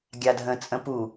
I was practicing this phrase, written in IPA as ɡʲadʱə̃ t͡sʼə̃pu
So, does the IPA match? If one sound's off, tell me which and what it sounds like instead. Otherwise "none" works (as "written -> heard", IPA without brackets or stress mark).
none